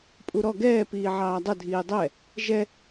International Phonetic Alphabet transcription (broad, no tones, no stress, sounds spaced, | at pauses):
pʼ u ɾ ɔ ɡ ɛː p iː ʕ ɑː dˤ ə dʱ iː dˤ ɛ | ʒ ɛ